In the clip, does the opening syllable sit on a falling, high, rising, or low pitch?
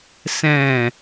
falling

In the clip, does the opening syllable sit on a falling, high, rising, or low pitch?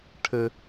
low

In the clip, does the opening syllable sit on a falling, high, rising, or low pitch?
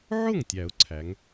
falling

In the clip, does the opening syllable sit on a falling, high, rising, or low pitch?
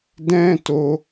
high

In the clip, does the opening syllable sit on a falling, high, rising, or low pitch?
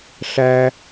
high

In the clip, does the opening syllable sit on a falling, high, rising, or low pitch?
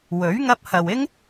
rising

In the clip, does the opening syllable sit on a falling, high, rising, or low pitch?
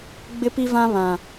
high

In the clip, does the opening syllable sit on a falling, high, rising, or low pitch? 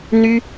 high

